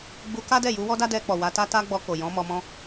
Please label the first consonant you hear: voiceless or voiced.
voiced